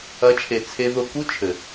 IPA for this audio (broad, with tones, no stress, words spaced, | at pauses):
ɐ˨˦t͡ʃʰe˨ t͡sʰe˧ðo˧ku˦ t͡ʃʰɘ˨